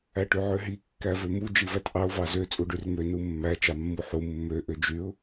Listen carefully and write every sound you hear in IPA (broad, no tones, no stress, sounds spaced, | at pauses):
æ ʈ y ʕ ø ɦ i kː æ v ø m u d͡ʒ i v æ t ʔ ɑ ʊ̯ v ɑ z ø t͡sʼ u ɖ y r m ø n u mː æ t͡ʃ ɑ mː u ħ u mː ø ʔ ø d͡ʒ y ʊ̯